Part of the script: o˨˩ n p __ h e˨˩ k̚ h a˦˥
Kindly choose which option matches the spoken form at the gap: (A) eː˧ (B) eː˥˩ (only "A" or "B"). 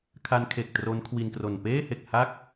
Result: B